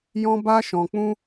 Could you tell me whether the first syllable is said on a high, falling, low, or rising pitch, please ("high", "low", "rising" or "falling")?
high